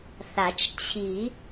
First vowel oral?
yes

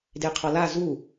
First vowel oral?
yes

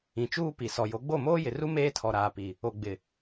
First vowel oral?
no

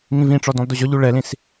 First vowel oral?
no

